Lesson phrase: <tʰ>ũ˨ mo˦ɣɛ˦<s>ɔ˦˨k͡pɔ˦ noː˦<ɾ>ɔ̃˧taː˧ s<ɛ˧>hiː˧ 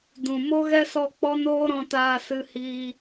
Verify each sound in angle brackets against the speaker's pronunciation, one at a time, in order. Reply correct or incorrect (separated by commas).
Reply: incorrect, correct, correct, incorrect